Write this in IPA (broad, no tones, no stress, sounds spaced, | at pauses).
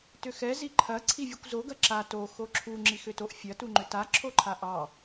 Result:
t ʏ x ɛ z i ǃʰ ɐ ǀʰ i vʲ u kʷ z o ɡ ɐ ǁ a t o x o ǁʰ u ŋ͡ǁ i x ʏ t o ʔ fʲ ɐ t u ŋ͡ǃ ʏ t a ǁʰ o ǃʰ a ʔ ɑ